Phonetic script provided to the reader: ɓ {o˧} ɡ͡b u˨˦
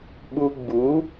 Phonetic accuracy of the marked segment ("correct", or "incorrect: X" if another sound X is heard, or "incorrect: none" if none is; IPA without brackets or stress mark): incorrect: u˧